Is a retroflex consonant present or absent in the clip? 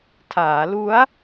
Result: absent